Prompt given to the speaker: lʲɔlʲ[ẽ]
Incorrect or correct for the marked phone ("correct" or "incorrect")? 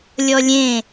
correct